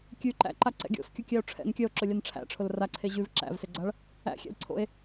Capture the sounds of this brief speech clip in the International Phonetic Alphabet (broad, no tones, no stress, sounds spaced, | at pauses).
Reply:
kʲ ʉ ǃ æ̰ ǃ a ǀ ɛ̰ ɡʲ o̰ s kʲ ʊ kʲ æ o̯ ʈ͡ʂʰ ɛ̰ n kʲ œ o̯ ǁ ʊ lʲ a n ʈ͡ʂʰ æ̰ ʈ͡ʂʰ ʊ l r a ǀʰ e ʑ ʉ v ǁ æ̰ v s e ɡ͡ǀ a ɭ | æ̰ xʲ ɛ̰ l ǀʰ o̰ e̯